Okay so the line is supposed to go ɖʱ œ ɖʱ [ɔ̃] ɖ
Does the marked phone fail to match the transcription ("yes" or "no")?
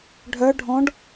no